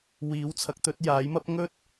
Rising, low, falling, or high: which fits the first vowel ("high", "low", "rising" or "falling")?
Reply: rising